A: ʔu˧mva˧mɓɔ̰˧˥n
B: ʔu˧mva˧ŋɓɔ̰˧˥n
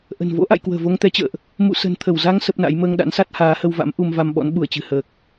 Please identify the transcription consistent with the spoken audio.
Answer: A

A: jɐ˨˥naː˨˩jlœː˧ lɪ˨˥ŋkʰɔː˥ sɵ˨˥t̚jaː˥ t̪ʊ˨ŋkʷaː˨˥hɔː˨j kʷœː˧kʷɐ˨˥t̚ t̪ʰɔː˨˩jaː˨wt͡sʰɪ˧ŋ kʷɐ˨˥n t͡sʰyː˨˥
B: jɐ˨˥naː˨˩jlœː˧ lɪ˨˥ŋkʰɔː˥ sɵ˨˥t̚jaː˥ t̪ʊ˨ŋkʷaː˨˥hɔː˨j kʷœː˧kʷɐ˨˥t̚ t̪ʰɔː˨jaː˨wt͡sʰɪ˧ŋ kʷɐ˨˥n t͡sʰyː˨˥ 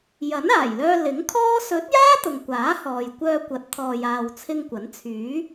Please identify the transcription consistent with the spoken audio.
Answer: B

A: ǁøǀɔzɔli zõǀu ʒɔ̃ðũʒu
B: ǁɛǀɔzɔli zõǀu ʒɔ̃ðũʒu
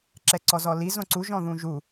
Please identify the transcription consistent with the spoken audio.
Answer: B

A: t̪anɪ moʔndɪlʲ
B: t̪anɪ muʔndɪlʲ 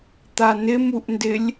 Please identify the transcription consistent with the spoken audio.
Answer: B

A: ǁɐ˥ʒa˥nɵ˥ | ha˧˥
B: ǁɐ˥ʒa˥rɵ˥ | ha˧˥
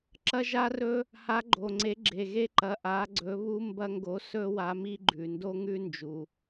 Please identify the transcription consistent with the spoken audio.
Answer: B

